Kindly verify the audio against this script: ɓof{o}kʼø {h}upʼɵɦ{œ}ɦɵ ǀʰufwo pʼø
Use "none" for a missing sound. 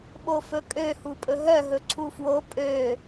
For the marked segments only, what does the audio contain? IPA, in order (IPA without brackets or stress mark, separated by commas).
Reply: ɵ, h, œ